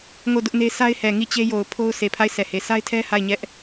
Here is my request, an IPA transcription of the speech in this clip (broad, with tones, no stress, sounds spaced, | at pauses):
ŋ o˦˨ d ʊ˦ ʔ n e˦ sʰ a˦ ɪ̯ h ɛ˨ ŋ i˦˨ t͡ɕ e˦ j o˨ ʊ̯ pʰ o˦ ʊ̯ sʰ e˨ pʰ a˦˨ ɪ̯ sʰ ɛ˨ h e˨ sʰ a˦ ɪ̯ tʰ ɛ˦ h a˦˨ ɪ̯ ɲ ɛ˦ ʔ